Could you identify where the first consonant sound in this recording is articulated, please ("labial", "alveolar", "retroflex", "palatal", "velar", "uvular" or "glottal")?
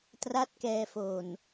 alveolar